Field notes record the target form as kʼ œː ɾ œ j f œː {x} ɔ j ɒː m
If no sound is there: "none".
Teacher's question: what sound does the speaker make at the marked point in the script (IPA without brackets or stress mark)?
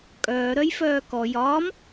k